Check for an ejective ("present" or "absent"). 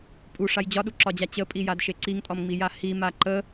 present